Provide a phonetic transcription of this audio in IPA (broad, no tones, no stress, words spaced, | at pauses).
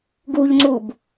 ɡuʎŋ͡ǀub